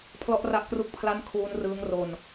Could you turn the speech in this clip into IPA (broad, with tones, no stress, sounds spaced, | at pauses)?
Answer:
pʰ l ɔ˥˩ ʔ r a˥˩ ʔ k r u˥˩ k̚ pʰ l a˥˩ n kʰ uː˦˥ n r ɯː˦˥ ŋ r o˧ n